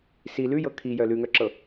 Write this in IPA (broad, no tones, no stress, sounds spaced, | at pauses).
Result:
s i l ʉ j ɤ kʰ i j œ l ʉ ŋ œ ǁ ɤ